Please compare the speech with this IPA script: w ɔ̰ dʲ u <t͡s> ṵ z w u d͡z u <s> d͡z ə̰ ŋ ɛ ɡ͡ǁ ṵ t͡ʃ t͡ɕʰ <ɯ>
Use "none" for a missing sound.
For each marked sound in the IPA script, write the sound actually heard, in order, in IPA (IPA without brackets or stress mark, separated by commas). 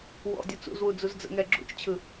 t͡s, z, ɯ